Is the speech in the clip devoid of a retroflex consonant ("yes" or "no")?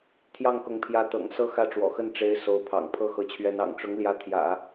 no